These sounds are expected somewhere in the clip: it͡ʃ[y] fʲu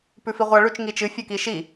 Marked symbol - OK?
no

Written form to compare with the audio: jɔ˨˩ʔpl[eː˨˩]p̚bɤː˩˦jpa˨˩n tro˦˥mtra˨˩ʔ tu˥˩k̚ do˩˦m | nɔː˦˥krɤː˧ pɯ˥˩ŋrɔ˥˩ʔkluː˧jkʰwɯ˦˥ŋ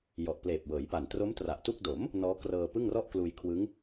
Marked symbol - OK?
yes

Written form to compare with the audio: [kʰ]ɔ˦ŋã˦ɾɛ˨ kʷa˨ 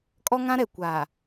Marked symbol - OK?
no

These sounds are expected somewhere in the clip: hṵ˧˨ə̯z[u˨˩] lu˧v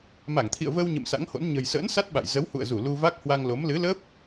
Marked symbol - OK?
no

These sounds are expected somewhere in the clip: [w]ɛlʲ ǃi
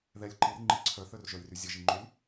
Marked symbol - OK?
no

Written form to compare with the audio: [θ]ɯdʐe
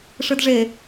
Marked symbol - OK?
no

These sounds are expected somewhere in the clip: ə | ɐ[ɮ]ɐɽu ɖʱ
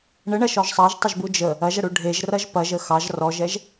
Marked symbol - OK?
no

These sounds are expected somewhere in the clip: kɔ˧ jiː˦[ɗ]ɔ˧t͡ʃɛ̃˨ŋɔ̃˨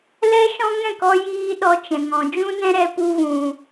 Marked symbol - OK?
yes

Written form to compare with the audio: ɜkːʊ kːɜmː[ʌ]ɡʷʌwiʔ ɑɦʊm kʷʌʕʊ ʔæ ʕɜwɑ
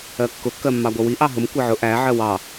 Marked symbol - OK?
no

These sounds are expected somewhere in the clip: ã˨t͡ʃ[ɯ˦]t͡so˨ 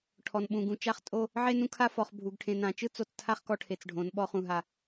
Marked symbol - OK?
yes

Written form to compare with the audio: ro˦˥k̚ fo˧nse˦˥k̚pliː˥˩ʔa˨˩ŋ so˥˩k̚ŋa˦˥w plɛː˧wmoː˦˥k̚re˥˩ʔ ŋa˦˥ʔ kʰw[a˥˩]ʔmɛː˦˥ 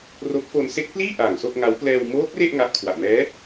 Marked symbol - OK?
no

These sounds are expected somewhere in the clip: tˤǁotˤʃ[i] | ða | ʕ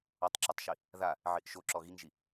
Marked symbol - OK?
yes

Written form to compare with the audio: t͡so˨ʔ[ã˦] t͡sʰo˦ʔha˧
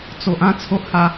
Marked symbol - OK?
yes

